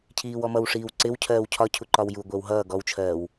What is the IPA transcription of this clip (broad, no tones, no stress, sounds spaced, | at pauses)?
cʰ iː w ɔ m ʌ w ʂ iː w ǀ ɪ w cʰ ɜː w cʰ ɒ cʰ u ǃ ɒ w j u ɡʷ ɛ w ɦ ʌː ɡ ɔ w t͡ʃʰ ɜː w